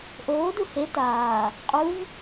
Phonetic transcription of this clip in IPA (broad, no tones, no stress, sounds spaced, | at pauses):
ʔ oː d u h e t aː | qʼ u v